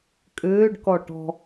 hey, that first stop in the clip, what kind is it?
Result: ejective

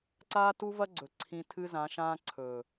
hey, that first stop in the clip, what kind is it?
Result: click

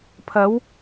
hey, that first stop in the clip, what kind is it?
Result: aspirated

